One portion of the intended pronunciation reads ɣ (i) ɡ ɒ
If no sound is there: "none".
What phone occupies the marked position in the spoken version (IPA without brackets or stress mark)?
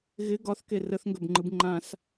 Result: ɪ